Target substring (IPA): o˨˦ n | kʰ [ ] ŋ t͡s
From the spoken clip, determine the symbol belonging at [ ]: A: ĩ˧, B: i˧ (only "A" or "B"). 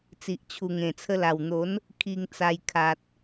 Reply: B